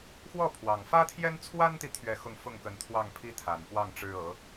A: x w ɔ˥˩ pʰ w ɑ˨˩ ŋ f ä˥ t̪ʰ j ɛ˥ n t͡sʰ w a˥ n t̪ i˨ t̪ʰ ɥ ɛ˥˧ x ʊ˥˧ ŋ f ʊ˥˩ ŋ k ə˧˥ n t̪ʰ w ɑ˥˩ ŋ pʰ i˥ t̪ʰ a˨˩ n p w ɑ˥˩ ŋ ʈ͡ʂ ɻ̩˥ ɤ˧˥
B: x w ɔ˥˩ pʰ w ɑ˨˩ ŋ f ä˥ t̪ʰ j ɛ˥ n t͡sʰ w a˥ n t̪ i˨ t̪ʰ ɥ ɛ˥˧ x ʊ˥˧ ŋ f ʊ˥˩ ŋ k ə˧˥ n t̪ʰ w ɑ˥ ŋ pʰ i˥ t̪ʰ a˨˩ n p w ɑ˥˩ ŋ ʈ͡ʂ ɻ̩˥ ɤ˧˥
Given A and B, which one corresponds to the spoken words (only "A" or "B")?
A